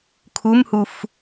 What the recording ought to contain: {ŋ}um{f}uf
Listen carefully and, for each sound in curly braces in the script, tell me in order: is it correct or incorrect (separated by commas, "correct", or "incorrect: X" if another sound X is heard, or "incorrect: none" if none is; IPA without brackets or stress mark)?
incorrect: kʰ, incorrect: h